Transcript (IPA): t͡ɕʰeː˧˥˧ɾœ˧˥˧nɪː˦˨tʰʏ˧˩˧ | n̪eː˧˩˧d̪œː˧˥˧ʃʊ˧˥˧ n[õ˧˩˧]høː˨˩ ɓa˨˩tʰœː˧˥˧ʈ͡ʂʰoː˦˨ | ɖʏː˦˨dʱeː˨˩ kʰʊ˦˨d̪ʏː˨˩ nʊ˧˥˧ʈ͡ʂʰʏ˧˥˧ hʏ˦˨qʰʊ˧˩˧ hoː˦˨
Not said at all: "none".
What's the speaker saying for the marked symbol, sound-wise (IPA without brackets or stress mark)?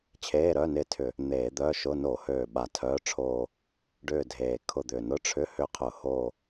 o˧˩˧